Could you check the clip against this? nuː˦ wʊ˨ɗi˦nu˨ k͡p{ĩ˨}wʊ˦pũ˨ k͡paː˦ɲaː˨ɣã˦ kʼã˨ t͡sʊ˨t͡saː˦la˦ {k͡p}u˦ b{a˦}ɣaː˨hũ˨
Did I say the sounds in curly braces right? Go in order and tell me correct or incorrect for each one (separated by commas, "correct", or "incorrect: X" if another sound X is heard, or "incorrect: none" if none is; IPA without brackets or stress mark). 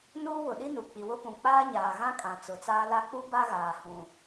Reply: incorrect: i˨, correct, correct